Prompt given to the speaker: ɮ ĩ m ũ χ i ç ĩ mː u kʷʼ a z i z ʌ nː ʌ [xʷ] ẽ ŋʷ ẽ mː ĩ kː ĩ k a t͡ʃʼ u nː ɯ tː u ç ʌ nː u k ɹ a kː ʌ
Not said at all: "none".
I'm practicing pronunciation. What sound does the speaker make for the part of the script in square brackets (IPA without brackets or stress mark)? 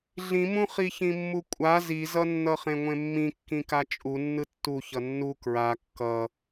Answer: χ